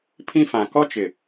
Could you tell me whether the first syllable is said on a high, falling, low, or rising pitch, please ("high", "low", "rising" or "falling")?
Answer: high